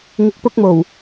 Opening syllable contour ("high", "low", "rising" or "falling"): low